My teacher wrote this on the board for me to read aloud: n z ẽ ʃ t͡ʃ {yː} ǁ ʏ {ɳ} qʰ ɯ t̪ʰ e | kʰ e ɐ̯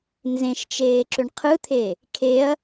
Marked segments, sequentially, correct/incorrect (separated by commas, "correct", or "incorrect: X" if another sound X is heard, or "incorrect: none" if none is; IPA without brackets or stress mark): incorrect: eː, correct